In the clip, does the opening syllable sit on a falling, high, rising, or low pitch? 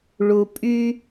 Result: low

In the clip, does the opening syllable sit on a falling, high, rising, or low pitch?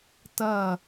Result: falling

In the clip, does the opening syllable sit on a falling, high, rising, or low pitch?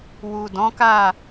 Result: low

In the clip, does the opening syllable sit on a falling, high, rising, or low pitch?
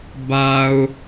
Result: low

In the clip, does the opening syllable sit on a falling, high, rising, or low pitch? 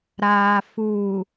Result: low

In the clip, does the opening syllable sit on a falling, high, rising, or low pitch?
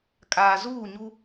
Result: low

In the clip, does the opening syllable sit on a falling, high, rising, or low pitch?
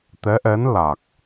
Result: rising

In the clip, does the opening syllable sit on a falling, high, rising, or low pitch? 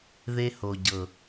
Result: high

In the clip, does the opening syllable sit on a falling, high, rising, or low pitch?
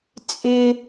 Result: high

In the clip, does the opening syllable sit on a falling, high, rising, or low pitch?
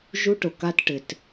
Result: high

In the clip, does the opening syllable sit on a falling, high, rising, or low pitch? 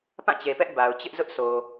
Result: falling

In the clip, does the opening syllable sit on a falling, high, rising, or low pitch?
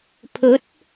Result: rising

